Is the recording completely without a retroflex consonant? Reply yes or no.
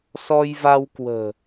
yes